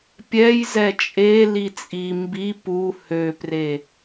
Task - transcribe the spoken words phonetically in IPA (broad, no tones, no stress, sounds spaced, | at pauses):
pʲ ɛ j z ɛ t͡ʃʼ e l i t͡sʼ i m b i p u h ø p r e